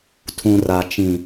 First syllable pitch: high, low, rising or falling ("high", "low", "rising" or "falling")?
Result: low